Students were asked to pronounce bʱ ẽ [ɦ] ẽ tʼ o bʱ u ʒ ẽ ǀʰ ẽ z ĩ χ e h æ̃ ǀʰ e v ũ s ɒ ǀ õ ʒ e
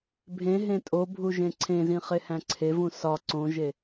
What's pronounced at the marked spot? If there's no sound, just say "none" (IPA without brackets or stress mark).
ɦ